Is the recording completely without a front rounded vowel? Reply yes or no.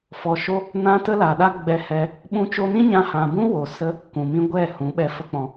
yes